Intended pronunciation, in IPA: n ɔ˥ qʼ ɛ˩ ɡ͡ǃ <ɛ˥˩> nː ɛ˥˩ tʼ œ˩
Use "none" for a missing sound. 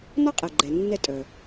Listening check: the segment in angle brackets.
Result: ɛ˩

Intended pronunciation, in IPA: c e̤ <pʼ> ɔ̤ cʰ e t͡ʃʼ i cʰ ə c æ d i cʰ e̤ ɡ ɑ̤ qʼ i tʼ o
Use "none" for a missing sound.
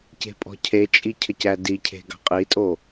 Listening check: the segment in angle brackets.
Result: pʼ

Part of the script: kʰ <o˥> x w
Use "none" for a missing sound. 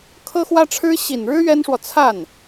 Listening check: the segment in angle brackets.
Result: ɤ˥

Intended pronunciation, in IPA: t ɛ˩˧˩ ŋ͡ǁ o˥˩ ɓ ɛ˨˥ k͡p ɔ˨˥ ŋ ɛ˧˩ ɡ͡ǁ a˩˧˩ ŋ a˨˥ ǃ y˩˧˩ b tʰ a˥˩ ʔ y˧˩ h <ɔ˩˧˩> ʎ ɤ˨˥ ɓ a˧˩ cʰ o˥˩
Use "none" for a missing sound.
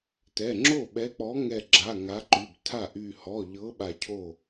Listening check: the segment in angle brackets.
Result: ɔ˩˧˩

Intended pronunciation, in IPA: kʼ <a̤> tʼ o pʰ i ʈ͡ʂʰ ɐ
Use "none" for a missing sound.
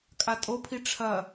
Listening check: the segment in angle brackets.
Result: a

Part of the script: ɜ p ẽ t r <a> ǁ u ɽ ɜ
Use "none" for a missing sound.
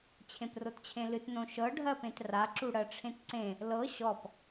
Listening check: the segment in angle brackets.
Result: a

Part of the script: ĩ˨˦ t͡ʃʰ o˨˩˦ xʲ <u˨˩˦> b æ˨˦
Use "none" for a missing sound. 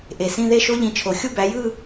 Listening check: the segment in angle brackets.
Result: u˥˧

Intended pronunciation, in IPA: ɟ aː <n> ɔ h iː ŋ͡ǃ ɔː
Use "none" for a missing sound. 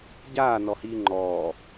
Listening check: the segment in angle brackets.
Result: n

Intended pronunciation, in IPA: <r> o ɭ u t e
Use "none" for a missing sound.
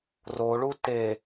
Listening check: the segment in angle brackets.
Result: r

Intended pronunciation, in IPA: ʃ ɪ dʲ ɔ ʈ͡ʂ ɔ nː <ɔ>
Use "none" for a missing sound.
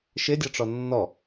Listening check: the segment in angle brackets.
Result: ɔ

